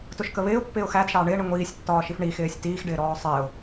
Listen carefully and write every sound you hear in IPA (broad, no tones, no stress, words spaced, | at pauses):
tʊʃkəβɪːʊ̯pːɪːʊ̯ xæd ʃɑːɳɪːɳi ŋʷiːsʲtːɒːʃif ɳixɪːsʲ tiːxɖɪːɾɔː sˤɪːʊ̯